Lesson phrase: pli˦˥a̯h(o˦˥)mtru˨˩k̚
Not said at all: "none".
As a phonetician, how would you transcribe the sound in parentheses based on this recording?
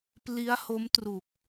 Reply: o˦˥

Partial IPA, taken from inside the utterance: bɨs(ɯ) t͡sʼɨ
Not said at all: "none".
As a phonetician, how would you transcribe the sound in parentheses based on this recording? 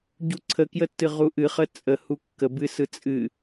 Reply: ɯ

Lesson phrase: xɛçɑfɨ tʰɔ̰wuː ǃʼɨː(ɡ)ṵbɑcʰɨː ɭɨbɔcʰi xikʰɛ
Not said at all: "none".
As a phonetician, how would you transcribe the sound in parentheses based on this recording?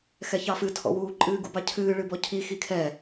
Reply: ɡ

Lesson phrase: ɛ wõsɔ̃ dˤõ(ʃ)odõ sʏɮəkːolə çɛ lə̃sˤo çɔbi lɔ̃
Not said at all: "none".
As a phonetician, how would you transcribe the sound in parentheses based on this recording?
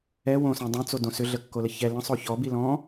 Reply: t͡s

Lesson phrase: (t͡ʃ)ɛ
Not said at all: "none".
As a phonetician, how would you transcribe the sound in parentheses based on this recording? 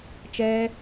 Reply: t͡ʃ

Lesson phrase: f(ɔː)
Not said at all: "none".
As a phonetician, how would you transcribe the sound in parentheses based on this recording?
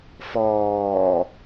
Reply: ɔː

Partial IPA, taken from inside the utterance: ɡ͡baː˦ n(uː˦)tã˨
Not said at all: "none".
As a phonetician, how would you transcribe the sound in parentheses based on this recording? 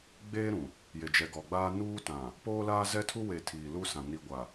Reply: uː˦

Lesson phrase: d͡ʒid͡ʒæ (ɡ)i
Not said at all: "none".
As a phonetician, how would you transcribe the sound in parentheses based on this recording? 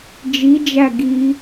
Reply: ɡ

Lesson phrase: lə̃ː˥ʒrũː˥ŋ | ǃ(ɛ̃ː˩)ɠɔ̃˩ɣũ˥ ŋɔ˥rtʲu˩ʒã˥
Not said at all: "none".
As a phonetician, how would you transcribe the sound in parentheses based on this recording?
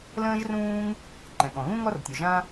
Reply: ɛ̃˩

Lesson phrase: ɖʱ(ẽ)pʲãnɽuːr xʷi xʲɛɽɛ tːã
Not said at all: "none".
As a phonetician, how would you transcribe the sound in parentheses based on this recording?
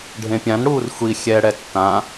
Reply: ẽ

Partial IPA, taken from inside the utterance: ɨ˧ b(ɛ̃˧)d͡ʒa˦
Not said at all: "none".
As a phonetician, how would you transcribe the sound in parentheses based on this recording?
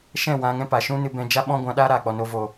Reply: ɛ̃˧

